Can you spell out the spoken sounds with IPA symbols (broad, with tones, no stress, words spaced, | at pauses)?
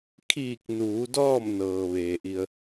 kʰiː˧˩k̚nuː˩˧ dɔː˥˨mnɤː˩ ʋeː˩ʔi˧ə̯